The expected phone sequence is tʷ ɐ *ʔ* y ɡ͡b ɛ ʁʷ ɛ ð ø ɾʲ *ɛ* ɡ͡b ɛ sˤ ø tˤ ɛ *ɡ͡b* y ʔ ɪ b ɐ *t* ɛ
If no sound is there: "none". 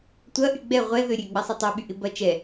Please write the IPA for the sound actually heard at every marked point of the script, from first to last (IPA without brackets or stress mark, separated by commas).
ʔ, ø, ɓ, t͡ʃ